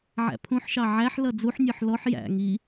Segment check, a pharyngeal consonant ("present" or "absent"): present